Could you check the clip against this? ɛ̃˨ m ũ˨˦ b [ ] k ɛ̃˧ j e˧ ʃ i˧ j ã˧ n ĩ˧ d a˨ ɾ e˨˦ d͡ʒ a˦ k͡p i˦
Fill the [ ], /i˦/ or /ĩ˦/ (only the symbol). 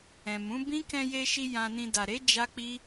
ĩ˦